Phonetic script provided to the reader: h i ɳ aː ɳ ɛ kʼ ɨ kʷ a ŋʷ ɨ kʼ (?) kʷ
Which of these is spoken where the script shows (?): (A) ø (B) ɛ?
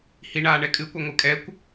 B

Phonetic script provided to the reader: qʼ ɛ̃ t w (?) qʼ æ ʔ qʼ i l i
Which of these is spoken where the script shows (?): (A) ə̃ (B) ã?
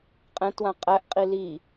B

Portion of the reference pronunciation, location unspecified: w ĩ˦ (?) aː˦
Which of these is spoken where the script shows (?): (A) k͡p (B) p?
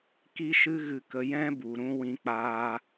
A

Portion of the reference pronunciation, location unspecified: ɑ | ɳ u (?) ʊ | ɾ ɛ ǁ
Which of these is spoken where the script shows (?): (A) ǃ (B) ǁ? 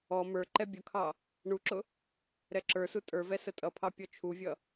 B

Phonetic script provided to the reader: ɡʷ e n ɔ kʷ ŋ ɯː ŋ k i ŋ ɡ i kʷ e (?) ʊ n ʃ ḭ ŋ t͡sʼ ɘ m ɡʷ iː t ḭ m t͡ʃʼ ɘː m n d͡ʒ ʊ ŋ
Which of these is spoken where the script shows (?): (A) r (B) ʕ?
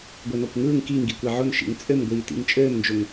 B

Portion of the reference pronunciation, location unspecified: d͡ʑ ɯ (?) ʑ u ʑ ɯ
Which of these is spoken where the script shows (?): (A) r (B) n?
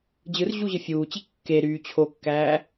A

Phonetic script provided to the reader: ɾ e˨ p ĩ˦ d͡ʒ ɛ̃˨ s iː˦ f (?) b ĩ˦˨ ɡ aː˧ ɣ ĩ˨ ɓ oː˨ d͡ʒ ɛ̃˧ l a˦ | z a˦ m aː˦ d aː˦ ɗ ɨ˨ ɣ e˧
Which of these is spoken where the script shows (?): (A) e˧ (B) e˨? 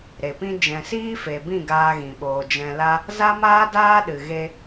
B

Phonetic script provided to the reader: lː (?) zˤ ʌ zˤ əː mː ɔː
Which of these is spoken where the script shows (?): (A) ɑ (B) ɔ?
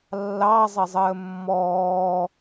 A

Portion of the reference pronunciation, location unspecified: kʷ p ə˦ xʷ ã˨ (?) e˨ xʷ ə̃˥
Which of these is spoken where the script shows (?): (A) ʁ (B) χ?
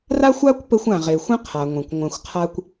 A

